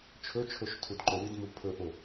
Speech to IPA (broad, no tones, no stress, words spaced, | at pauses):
t͡ʃʰɵt͡ʃʰoʃ tʰudǃowidmu pʰɵʔo